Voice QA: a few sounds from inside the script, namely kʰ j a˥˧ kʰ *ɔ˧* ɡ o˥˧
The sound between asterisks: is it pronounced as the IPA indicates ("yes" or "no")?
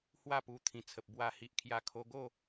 no